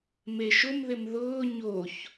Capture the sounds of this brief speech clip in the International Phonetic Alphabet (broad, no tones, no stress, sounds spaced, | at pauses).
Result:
m e ʃ ʊ m ð ɪ m ð ʊː ɲ o ç